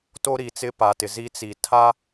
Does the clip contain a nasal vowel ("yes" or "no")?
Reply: no